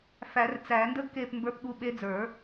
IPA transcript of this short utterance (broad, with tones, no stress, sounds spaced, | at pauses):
f æ˨˩˦ r t͡s æ˨˩˦ n d ə˥ ɡ k e˦˨ p m b ə˞˧˥ p ɠ u˧˥ ɓ e˧˥ d͡z ə˞˨˩˦